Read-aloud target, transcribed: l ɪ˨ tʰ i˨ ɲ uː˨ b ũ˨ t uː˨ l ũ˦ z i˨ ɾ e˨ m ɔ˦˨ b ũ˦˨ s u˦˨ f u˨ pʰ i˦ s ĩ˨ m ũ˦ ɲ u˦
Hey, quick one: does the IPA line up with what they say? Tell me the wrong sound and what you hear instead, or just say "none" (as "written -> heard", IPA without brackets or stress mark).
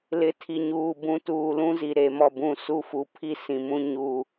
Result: none